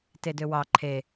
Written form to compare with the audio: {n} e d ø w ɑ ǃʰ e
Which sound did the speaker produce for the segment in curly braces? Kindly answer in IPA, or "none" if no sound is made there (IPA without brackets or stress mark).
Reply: t